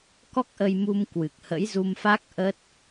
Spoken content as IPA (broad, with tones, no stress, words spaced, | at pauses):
kɔ˦˥k̚ʔə˧jmu˧m kwɨ˨˩k̚hə̰˧˥jzu˧mfa˦˥k̚ ʔə˦˥t̚